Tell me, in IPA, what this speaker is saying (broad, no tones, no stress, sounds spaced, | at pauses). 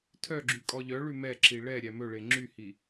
tʰ œ ɡ͡ǁ y kʼ ɔ ʎ œ ɭ ʉ m ɛ ǁ i ɭ ɛ ɾʲ æ m ɵ ɭ e ŋ͡ǁ y h i